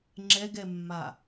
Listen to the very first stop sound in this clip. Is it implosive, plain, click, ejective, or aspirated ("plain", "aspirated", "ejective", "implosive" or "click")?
click